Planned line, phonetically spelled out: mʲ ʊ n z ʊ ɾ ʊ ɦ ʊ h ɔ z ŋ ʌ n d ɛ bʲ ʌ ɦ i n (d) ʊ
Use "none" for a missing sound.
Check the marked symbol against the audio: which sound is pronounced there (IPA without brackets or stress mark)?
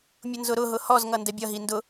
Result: d